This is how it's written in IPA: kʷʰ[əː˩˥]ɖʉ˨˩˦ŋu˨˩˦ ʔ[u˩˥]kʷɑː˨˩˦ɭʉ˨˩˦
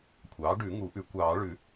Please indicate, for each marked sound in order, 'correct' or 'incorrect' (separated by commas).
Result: incorrect, incorrect